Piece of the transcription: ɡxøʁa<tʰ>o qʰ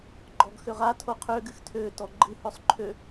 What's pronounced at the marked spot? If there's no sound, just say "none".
tʰ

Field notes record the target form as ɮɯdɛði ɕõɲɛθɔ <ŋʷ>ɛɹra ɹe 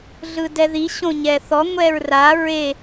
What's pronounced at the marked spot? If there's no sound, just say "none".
ŋʷ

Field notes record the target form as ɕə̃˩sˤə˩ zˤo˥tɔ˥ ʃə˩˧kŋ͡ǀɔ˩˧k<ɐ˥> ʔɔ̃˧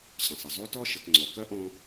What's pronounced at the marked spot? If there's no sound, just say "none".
ɐ˥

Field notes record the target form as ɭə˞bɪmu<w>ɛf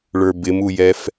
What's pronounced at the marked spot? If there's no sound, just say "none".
j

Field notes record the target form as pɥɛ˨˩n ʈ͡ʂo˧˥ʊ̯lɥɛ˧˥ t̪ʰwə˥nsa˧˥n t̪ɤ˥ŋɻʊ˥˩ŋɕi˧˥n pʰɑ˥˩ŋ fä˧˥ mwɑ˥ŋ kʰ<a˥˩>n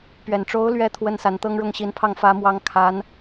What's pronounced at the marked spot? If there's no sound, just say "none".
a˧˥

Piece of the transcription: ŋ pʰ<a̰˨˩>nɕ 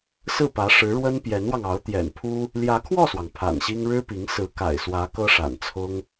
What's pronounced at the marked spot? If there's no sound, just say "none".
a̰˨˩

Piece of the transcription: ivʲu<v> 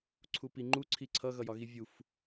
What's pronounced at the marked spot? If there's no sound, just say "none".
f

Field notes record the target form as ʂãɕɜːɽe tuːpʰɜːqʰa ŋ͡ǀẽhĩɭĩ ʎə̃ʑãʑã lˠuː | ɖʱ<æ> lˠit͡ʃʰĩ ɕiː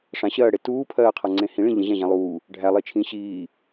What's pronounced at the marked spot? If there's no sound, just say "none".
æ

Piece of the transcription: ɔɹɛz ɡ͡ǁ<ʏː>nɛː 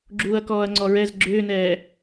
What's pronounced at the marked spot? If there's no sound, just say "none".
ʏː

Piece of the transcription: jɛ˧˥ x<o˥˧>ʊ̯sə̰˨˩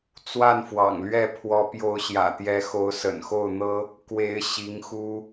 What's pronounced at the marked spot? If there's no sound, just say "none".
o˧˥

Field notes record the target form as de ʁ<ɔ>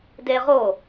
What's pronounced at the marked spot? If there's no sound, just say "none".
o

